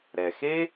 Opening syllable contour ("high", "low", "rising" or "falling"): low